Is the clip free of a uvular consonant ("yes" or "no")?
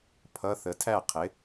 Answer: no